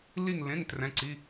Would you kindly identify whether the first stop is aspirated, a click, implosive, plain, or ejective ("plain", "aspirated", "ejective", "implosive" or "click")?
plain